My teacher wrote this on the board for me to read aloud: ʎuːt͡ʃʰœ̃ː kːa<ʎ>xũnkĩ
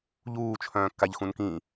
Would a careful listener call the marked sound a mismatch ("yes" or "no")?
no